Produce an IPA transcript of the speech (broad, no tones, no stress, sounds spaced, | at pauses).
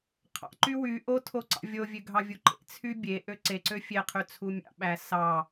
qʰ ɑ̰ ǃ y w y ʔ o tʰ o ǀ ɑ̰ vʲ o vʲ ø ɡʱ ɑ vʲ u ǃ ḛ t͡sʰ y bʲ e ʔ ø ǀ e ǀ ø fʲ e qʰ y t͡sʰ u mʲ ɑ̰ ɓ æ s ɑ